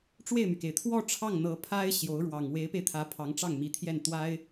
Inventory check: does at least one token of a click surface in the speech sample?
no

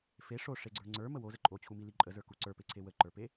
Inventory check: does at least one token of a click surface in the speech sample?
yes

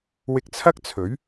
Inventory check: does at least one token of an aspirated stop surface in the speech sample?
yes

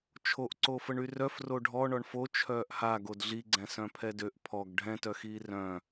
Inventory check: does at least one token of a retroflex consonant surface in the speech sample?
yes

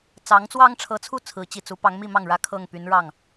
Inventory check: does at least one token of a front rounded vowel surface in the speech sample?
yes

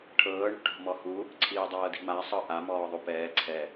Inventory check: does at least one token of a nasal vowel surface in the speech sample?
no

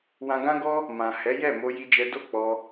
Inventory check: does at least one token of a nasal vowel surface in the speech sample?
yes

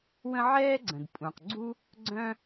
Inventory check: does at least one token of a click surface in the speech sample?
yes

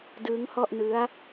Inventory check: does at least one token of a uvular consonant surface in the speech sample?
no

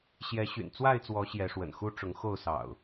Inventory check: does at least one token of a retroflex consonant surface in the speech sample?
yes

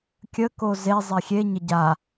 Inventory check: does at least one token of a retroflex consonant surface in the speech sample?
no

